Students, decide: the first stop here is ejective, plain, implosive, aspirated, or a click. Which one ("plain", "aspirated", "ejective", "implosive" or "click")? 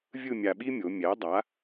implosive